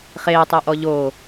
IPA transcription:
χ eː tˤ e ʔ ɔ ʎ o

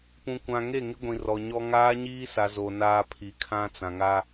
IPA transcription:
p ũ˨ kʷ ã˨ ŋ e˦˨ ŋ ɪ˦ ɡʷ ĩ˨ r ɔ˨ ɲ ɔ˦ ŋ aː˦ ɲ iː˦ s a˨ z o˨ n aː˦ pʰ i˨ kʰ ã˦ t͡s ã˨ ŋ a˦

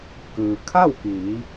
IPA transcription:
k ɯː˩ kʰ a˥˨ w k iː˩˧

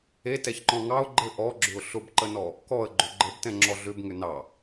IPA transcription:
e t ɛ ç ǃ ɔ̃ ŋ ɑ ʊ̯ ɡ͡ǃ ɘ ʔ ɔ ɡ͡ǁ ʏ ʊ̯ ɬ ʊ b ǃ ə n ɔ | k ɔ ə̯ ɡ͡ǃ ʏ ɡ͡ǃ ə b t ɛ̃ ŋ͡ǁ ɔ ɮ ʏ b ŋ ʏ n ɑ

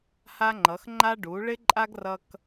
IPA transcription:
h a˦ ŋ͡ǃ ʌ˨˦ x ŋ͡ǃ a˦ ɖ u˨˦ ɭ ɪ˦ ǃʼ a˦ ɡ r ʌ˧ k

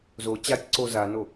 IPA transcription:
z o t͡ɕ a tʲ ǀ o z a n o

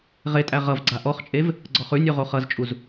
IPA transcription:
ʁ e tʼ æ ʁ ʌ v ɡ͡ǀ a ʔ ɔ χ t͡ʃʼ e v | ɡ͡ǀ ɔ χ ʉ nʲ ʉ ʁ o χ ʌ z t͡ʃʼ u z

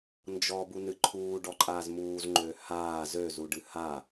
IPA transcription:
n d͡ʒ ɔː b u n ɨ ǃʰ uː ɖ ɔ ǃʼ aː z m uː z ŋ͡ǃ øː h aː z ø z u ɖ ɨ h a

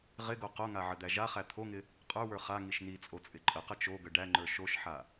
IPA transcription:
ʁ ɪ ɡ o q o ŋ a ʕ ə d̪ æ ʒ a χ æ t̪ʰ o ŋ ɪ | qʼ ə˞ w ə˞ χ a ŋ i ʃ n i t͡sʼ o t͡sʼ ɪ ǃʼ ə q ə t͡ʃ o ɡ ə ɖ æ ŋ͡ǃ ə˞ ʃ o ʃ ħ a

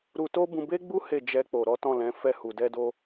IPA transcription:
ɾ u˧ t o˦ b ũ˧ b e˦ ɡ͡b u˦ h e˦˨ d͡ʒ ɛ˧ k͡p o˨ ɾ ɔ˨˦ t ɔ̃˦˨ l ɛ̃˨˦ f ɛ˦˨ h u˨ d ɛ˧ d o˧

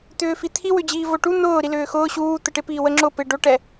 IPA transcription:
t̪ ʏː f i t̪ʰ i w ʏ d͡ʑ iː v o ʈ u n̪ ʊː ɾ i l ʏː x ʊː ɕ uː t̪ ə ʈ ɪ p iː w ə ŋ͡ǁ ʊ p ɪ ɖ o ʈ ɛ

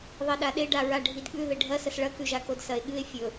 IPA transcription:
ðˤ e ɗ a ɗ e ɖ a ɹ a ɖʱ i d ɠ ʉ ð e ɖʱ ɐ s ɐ s ɭ ɐ k ʉ ʒ a k o d s ɐ e̯ ɠ ɨ e̯ fʲ ɵ

